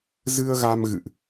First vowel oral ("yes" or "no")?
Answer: yes